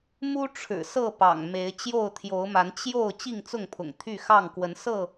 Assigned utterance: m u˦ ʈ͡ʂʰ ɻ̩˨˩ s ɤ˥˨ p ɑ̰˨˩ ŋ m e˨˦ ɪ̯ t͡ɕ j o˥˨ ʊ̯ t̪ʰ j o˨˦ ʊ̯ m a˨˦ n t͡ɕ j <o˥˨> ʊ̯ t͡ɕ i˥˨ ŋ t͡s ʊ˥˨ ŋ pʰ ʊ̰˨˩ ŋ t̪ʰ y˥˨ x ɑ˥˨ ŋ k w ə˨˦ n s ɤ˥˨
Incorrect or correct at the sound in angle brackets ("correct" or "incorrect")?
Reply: correct